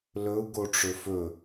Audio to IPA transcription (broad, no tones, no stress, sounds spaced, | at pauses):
l ɵ u̯ ɡ o ʈ͡ʂ ɵ f ɵ